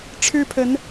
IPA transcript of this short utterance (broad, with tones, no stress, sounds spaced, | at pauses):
ʈ͡ʂʰ ɻ̩˦ pʰ ə˨˦ n